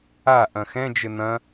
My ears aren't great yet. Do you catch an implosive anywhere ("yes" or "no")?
no